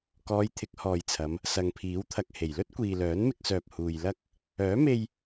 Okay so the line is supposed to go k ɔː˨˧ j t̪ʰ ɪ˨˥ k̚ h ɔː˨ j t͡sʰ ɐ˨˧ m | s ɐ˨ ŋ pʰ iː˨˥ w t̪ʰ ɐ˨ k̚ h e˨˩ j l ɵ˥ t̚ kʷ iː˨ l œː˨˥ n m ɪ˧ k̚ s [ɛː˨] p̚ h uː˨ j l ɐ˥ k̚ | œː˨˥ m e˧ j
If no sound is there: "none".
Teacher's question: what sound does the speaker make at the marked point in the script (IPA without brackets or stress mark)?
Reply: œː˨